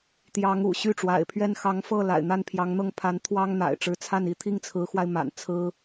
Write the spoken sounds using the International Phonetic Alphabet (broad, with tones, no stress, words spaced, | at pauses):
t̪jɑ˧˥ŋ ṵ˨˩ɕy˥˩ʈ͡ʂwa̰˨˩ɪ̯pʰɥɛ˥n xɑ˧˥ŋfɤ˥˩ la̰˨˩ɪ̯n̪a˥˩npʰjɑ˧˥ŋ n̪ɤ˥˩ŋpʰa˧˥nt̪ʰwɑ˥ŋn̪a̰˨˩ɪ̯ ʈ͡ʂɻ̩˧˥t͡sʰa˥˩ni˥ t̪ʰi˥˩ŋt͡sʰɹ̩˧˥xwa˧ɪ̯ ma̰˨˩nt͡sʰɹ̩˥